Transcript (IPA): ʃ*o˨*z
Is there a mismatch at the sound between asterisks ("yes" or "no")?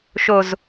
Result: no